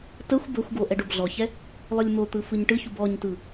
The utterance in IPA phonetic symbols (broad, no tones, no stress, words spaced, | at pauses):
təxʷ bəxʷɡo ʔɛɖobɮɔçɛ | lˠɯlʲmot̪ɯ fɯɲʈɯçub ɔɲtɯ